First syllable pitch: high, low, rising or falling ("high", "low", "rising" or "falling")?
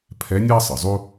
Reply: rising